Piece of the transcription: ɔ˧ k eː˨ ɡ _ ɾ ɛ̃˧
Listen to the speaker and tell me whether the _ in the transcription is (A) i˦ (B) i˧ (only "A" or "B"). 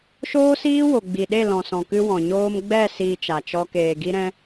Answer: B